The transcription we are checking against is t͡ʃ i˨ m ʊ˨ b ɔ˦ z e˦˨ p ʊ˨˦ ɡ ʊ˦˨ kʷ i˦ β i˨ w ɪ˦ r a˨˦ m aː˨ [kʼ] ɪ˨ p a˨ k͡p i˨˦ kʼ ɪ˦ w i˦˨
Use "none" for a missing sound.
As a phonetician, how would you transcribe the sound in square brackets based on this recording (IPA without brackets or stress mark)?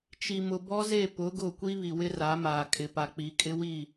kʼ